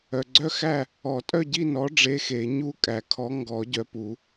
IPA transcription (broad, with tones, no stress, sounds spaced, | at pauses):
œ˨ ɡ͡ǀ œ˥˨ x æ˥˨ | ɔ˨˩˦ tʼ œ˥˨ ɟ i˥˨ n ɔ˨˥ ɖ͡ʐ e˧˥˧ x e˨˩˦ ɲ u˥˨ kʼ æ˨˩˦ kʰ ɔ˨˥ ŋ ɡ ɔ˨˩˦ ɟ œ˨ p u˨˩˦